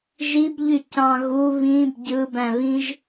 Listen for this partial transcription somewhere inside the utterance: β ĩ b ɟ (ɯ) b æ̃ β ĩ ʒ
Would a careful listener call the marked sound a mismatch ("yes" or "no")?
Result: no